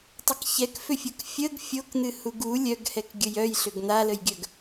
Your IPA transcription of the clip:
tˤ ə k ç ɛ k f ʏ fʲ o k fʲ ə ɡ fʲ o k n̪ ɨ h u ɡ u lʲ œ ɡ h ɛ k ɡʲ ə j œ j ɬ ʏ ɡ n̪ a l ə j ɡʲ œ ɡ

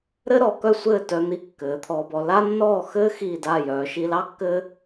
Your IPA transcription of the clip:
ɾ ɘ˥ ɾ ɔ˩˧ k œ˥˧ sʷ ɘː˥˧ t œ˧ n̪ i˧˩ kː ɘː˩˧ t̪ʰ ɔː˧ b ɔ˧ l a˥ nː ɔː˥˧ x ɘː˥ x iː˧˩ d a˧˩ j œː˩˧ ʃ i˧ l ɑ˥ kː ɘː˥

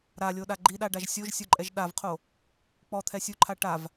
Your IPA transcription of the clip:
ɾ a lʲ o ɗ a ɡ͡ǃ i ɗ a ɖ a ʒ sʲ o ʒ sʲ o ǃʼ ɛ ʒ ɗ a v qʰ o | k͡p ɔ t̪ʰ ɛ sʲ u ǃʰ a ʈ a v

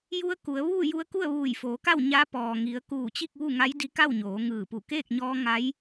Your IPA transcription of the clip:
j u˧ ə̯ k u˩˧ ə̯ ʋ uː˥˨ j u˧ ə̯ k u˥˨ ə̯ ʋ uː˧˩ j f oː˩˧ k a˥˨ w ɲ a˧˥ p ɔː˩ ŋ i˩˧ ə̯ k uː˧˩ t͡ɕ i˥˨ k̚ ʋ u˥˨ ŋ a˧˥ j d i˧˥ k a˥˨ w ɲ oː˩˧ ŋ ɯː˧˩ p u˧˩ k eː˥˨ k̚ ɲ ɔː˧ ŋ a˧˥ j

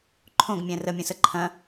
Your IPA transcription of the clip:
ǃʰ õ ɡ mʲ ɛ̃ r ə mʲ ə̃ s ə ǃʰ ɐ̃

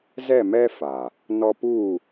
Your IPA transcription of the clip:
z ɛ˦˨ m ɛ˦ f a˨ | n ɔ˦ p u˦˨

